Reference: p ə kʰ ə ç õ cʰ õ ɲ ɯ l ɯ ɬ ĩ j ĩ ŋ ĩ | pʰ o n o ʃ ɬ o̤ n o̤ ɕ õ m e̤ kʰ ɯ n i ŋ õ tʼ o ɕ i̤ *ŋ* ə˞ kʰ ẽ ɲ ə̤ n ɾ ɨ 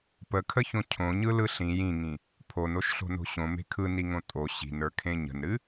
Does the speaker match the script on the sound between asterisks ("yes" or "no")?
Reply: no